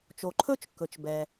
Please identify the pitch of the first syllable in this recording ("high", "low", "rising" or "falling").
low